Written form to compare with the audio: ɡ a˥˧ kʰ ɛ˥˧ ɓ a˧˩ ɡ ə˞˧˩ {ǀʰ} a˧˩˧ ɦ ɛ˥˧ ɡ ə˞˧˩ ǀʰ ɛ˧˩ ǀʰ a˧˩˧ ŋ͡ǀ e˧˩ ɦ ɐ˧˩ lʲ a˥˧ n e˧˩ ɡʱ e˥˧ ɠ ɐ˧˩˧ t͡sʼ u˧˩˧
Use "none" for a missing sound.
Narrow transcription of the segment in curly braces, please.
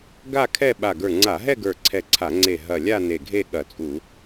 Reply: ŋ͡ǀ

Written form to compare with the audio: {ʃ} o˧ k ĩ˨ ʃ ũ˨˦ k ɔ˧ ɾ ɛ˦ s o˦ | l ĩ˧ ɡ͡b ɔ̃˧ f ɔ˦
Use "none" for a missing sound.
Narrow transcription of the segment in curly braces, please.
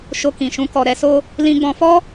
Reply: ʃ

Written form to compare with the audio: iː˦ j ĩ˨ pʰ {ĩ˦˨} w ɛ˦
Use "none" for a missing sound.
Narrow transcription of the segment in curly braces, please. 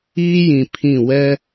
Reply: ĩ˦˨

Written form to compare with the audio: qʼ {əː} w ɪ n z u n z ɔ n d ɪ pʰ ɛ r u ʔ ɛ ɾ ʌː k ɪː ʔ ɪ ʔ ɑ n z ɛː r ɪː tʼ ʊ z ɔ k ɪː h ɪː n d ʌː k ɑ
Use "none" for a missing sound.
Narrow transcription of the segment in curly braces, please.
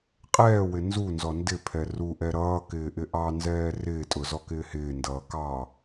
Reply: ɛː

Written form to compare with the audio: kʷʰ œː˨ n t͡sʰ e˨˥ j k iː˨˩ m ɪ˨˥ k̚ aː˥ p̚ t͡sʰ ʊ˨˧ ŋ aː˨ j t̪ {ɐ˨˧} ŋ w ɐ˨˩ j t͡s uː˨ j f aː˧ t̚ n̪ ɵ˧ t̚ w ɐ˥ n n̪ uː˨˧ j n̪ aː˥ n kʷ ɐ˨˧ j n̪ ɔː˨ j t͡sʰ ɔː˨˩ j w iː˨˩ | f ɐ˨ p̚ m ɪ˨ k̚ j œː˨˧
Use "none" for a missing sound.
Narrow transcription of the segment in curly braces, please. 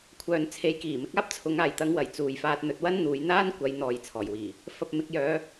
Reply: ɐ˨˧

